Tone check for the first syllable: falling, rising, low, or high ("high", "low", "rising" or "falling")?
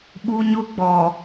high